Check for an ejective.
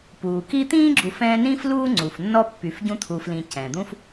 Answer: absent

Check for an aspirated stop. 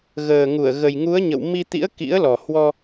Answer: absent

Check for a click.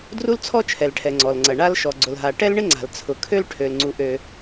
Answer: present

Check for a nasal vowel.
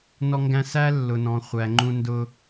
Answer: present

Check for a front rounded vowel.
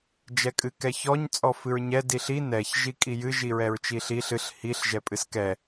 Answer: absent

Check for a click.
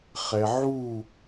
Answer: absent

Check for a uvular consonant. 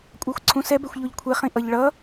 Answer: present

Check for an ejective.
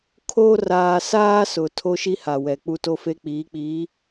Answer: absent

